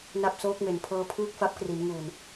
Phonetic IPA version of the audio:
na˥˩p̚soː˦˥k̚me˩˦n pʰɤː˦˥pʰɯː˥˩k̚fa˦˥p̚kri˩˦n ŋuː˨˩n

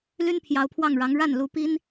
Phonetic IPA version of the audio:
ly˥npʰjɑ˧˥ʊ̯pʰwɑ˥˩ŋɻɑ˧˥ŋ ɻa˥˩n lu˧˥pi˥n

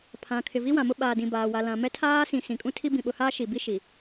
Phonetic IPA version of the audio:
pʰã˨ kʰɪ˨vi˦wã˨mʊ˦ ɓaː˨dĩ˨baː˨ wa˨lã˨mɛ˦ tʰaː˦sĩ˨ sĩ˨kʼũ˦tʰi˦ bĩ˨ɓʊ˨haː˦ ʃi˨bi˦ ʃi˨

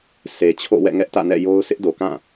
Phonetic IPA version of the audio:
se˨t͡ɕʰo̰˦˨ wɛ̰˦˨ŋɛ˦ʔtä̰˦˨nɛ̰˦˨ jo˦ʊ̯ sʰɪ˦ʔdo˨kã˦˨

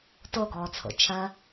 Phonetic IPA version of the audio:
toɡɔːt͡sʰo̰ t͡ʃʰɜ

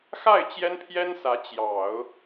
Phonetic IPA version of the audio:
xa˥˩ɪ̯ t͡ɕjɛ˥npʰjɛ˥nsä˧˥ t͡ɕjɑ˨˩˦ʊ̯

